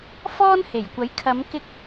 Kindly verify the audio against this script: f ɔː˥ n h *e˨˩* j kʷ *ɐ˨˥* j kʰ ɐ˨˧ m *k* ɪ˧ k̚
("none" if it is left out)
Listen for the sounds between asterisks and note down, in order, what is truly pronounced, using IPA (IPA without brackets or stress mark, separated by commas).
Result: e˨˩, ɐ˨˥, k